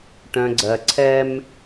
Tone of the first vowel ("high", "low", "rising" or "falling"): low